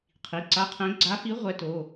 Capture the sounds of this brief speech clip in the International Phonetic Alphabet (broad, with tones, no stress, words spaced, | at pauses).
qʰi˩˧˩ǀa˧˥˧qʰɛ̃˧˥ ɡ͡ǀa˧˥fi˧˥ ʁʷɛ˧˥to˩˧˩